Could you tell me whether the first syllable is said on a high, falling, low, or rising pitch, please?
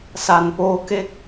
low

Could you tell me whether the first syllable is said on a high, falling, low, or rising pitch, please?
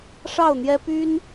falling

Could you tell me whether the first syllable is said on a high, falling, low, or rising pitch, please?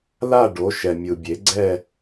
falling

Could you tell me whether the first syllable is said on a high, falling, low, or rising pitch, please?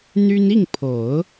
high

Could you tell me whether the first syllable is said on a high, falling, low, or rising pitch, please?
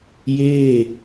falling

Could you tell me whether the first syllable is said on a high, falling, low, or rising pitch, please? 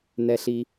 low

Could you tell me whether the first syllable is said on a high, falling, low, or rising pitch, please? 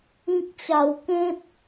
low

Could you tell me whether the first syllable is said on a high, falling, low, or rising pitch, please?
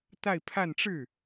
falling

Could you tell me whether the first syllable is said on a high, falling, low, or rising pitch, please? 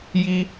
high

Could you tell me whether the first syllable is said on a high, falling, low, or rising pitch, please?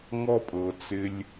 high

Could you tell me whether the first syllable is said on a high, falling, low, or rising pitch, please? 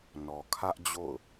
low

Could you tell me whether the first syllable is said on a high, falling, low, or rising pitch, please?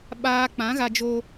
high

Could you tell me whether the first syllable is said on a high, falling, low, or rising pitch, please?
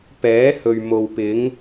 rising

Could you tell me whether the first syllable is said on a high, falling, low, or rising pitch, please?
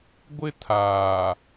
high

